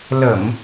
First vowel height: mid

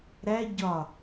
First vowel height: low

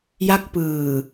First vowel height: low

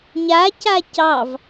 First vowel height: low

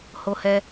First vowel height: mid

